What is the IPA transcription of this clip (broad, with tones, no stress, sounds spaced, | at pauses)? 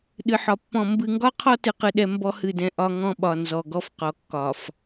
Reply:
ɗ ɨ˨ ħ ɒ˨ pː ɔ̃˨ m b ɨ˨ ŋ ɡ ɒ˦ qʰ ɔ˦ t ɨ˦ q ɨ˦ ɗ ɛ˦ m b ɔ˦ h ɨ˦˨ d ɛ̃˦ ʔ ɒ˦ ŋ ɔ̃˦ ɓ ɒ˨ n z ɔ˨ ɡ ɔ˦ f q ɔ˨ kː ɒ˨ f